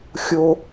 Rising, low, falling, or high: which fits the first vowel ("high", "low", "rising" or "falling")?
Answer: high